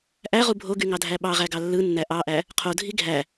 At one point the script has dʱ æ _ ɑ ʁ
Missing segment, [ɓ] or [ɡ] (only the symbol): ɓ